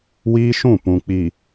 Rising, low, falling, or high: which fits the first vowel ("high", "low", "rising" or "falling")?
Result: high